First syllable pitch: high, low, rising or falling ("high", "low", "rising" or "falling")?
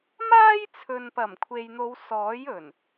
high